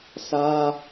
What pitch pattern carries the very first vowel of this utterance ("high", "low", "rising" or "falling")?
high